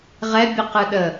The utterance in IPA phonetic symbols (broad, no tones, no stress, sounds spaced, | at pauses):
ʁ ɛ bʲ u q ɯ ɗ ə